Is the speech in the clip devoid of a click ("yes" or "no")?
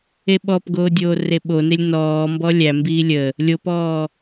yes